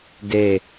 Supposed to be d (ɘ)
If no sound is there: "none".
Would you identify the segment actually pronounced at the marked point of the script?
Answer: e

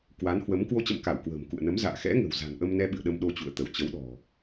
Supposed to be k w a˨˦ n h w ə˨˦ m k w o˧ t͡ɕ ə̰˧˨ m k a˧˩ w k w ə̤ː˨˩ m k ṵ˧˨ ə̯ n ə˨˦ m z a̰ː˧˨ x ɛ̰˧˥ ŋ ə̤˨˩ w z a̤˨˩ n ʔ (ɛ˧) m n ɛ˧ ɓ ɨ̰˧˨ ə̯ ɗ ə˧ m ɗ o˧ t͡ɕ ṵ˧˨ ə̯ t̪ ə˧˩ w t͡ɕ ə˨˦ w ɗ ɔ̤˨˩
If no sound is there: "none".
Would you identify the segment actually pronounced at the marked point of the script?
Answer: ə˧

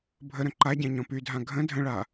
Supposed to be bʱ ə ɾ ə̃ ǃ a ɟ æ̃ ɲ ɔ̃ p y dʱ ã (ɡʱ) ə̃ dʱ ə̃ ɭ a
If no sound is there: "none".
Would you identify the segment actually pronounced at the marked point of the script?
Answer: ɡʱ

